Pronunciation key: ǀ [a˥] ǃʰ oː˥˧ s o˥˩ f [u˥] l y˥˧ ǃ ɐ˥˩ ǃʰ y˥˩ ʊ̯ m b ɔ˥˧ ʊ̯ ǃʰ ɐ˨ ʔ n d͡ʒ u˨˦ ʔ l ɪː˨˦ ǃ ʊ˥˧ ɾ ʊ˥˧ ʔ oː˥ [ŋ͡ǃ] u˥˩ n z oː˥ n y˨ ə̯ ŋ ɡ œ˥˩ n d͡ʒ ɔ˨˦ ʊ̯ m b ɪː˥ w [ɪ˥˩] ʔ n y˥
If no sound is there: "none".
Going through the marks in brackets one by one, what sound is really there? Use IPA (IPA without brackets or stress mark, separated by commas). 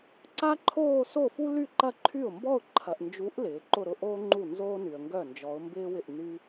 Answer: a˥, u˥, ŋ͡ǃ, ɪ˥˩